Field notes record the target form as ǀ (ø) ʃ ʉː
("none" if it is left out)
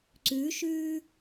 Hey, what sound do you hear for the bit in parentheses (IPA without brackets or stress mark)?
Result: ʉ